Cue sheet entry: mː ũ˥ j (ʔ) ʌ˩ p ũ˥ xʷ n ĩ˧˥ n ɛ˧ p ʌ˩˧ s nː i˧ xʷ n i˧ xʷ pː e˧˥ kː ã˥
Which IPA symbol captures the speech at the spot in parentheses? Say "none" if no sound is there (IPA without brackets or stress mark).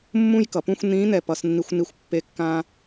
k